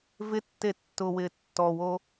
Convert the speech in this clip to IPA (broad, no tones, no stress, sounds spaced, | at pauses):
v ɪ tː e tː ʊ w ɪː tː ɔ w o